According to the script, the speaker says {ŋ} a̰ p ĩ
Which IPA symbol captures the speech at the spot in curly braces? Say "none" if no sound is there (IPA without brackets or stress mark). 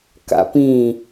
k